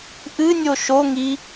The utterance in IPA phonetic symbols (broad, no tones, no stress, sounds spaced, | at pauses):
ʔ ɨ nʲ o ʃ o ŋ i